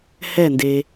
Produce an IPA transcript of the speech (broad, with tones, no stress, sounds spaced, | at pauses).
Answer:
h ɛ˦˨ n d e˨